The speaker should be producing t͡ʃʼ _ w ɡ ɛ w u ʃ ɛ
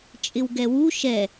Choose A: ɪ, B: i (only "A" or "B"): A